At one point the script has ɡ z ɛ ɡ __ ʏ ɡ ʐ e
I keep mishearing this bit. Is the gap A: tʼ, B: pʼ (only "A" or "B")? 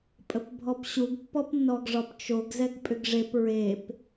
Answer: B